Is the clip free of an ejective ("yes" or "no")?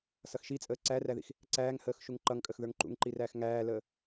no